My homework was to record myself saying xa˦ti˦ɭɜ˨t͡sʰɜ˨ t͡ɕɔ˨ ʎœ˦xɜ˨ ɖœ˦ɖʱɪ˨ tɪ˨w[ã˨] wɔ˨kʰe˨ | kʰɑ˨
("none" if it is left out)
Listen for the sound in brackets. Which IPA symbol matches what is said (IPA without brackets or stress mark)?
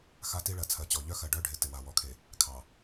a˨